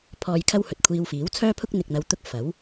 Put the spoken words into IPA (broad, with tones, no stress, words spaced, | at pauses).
pʰɔː˨jkʰɐ˧w hɵ˨t̚kʷʰiː˧wfiː˨˥w t͡sʰœː˥pʰʊ˥k̚ n̪ɪ˨k̚n̪ɐ˨˧wt̪ʊ˧k̚ fɐ˨˥w